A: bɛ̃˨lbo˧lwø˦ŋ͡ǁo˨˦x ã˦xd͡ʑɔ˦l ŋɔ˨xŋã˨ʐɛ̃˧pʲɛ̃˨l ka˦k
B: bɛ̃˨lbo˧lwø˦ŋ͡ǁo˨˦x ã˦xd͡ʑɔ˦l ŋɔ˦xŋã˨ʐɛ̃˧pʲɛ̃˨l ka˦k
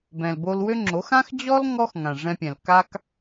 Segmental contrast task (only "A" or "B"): B